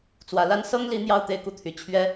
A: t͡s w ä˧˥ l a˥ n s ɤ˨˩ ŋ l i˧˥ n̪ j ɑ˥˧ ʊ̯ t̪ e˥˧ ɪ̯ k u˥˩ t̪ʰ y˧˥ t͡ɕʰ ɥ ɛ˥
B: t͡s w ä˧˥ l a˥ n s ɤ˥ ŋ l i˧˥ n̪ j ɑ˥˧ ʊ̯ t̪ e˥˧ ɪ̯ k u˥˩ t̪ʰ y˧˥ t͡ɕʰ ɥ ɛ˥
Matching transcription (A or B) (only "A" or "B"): B